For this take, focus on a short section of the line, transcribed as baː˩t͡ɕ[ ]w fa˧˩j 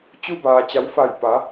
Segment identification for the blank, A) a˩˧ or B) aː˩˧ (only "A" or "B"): A